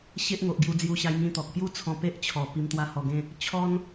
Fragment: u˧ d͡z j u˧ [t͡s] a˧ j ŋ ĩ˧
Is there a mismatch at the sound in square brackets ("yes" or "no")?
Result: yes